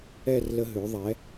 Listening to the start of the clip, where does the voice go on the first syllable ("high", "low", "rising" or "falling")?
falling